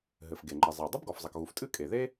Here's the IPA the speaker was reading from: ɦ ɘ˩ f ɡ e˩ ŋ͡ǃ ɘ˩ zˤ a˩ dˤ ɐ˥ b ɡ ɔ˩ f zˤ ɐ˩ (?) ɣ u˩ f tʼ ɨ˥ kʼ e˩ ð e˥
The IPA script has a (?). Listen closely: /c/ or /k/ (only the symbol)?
k